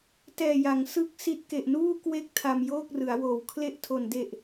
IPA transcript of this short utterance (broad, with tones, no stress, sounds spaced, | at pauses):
t ɛː˨˩ j a˩˦ ŋ s ɯ˥˩ k̚ s i˦˥ t̚ k e˨˩ ʔ n uː˥˩ k w e˥˩ k̚ tʰ a˧ m j oː˥˩ k̚ r ɯ˩˦ a̯ w oː˨˩ w kʰ l e˥˩ ʔ tʰ o˨˩ n d e˨˩ ʔ